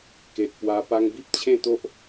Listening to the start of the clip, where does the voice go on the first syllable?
low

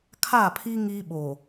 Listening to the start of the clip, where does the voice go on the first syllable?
falling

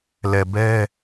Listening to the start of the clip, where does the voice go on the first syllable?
low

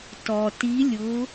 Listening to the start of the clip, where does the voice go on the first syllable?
low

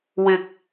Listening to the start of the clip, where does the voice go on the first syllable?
low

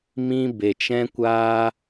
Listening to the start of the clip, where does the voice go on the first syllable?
high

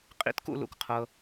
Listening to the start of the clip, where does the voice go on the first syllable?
high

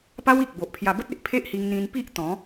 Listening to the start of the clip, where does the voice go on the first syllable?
high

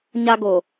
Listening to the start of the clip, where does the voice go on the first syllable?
high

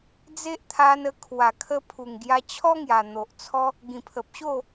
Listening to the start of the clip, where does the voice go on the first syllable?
high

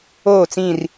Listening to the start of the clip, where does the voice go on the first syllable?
falling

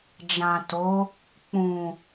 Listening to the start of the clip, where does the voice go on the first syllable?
low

